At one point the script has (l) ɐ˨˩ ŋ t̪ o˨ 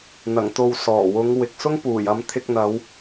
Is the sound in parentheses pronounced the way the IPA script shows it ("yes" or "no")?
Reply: no